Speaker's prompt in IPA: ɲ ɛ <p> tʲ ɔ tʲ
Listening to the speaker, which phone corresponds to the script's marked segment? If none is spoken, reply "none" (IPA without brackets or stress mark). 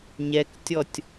k